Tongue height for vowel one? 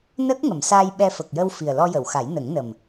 mid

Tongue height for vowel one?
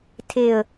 mid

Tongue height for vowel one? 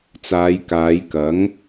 low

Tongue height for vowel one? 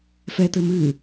mid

